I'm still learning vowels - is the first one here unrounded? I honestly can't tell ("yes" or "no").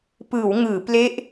yes